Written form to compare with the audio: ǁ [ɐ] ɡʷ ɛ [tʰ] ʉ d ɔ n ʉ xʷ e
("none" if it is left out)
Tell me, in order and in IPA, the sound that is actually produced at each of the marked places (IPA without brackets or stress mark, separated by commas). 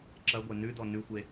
ɐ, n